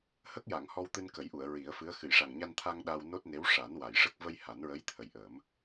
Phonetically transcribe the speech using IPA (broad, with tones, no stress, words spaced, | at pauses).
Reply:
hə˦˥k̚ja˨˩˨ŋ hɔ˧wt̪ɨ˧nkə˨˩˦jʔu˨˩˨ə̯ ɹi˨˩˦ə̯fɨ˧˥ə̯ xɨ˨˩˨jʂa˨˩ŋɲa˧nt̪ʰa˧ŋ ɗa˧w no˦˥t̚ne˧˥w ʂa˨˩˦n wa˨˩˨j ʂə˦˥k̚ və˧j ha˨˩˦nɹə˧˥jt̪ʰə˨˩jʔə˨˩˦m